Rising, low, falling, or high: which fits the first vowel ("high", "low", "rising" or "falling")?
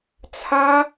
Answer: high